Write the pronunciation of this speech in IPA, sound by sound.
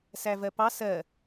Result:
s æ v ɜ p ɑ s ɜ

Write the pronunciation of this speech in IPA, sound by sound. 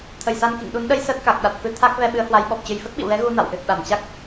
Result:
t̪ʰ ə˧˩ j s a˧ n k ḭ˧˨ ŋ ɗ u˨˦ n ɗ ə˧ j s əː˦˥ t̚ k a˨˩ k̚ ɗ a˨˩ t̚ f ɨ˧ t̪ʰ a˦˥ k̚ v ɛ˧ ɓ ɨ˨˦ ə̯ h w a˨˦ j ɓ ɔ˨˩ p̚ t͡ɕ ɨ˨˩ j f ə˦˥ t̚ ɓ ḭ˧˨ w l ɛ˨˦ ɣ u˧ n a̰˧˨ w ʔ ɨ˨˩ t̚ ɗ a˧˩ n t͡ɕ a˦˥ k̚

